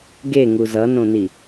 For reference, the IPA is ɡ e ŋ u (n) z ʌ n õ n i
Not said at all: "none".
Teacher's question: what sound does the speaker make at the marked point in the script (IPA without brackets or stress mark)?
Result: none